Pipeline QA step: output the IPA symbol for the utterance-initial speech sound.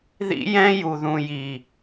ð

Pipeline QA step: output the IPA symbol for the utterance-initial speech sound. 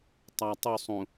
tˤ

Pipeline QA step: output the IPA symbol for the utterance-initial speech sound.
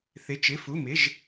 θ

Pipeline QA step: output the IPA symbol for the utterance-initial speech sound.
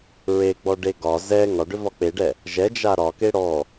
ɹ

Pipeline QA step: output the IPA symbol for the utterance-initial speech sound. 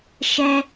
ʃ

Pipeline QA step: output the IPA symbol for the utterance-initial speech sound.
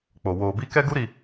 k͡p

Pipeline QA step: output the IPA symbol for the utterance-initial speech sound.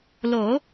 l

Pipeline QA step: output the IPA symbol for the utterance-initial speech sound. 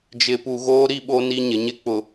d͡ʒ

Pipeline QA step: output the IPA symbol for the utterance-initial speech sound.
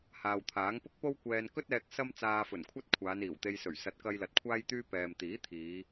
h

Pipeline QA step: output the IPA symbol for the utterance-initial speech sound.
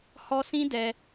h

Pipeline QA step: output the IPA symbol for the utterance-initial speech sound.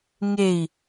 ŋ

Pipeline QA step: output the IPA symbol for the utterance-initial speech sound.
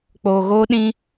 k͡p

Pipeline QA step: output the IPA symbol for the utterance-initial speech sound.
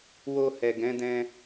w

